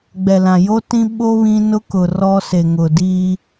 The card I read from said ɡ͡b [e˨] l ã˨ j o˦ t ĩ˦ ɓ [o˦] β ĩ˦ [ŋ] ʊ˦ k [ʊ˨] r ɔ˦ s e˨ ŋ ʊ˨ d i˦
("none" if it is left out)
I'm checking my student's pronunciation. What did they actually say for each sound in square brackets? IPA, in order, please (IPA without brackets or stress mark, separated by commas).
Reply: ɛ˨, o˦, n, ʊ˨